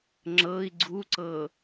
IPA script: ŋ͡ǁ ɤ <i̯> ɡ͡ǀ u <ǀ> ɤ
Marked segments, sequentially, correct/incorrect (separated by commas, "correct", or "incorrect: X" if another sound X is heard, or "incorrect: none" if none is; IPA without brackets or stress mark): correct, correct